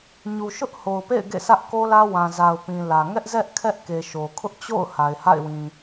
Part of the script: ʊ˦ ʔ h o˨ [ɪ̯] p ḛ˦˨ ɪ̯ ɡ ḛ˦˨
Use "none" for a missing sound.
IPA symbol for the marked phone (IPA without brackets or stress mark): ʊ̯